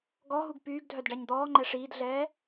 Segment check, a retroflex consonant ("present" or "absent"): present